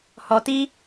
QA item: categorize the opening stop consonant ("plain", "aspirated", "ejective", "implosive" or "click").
plain